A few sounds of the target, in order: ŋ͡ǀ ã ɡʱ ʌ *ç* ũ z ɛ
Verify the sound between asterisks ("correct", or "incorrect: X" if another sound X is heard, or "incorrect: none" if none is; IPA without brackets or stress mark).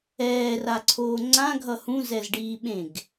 incorrect: h